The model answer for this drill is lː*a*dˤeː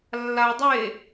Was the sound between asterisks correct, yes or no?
yes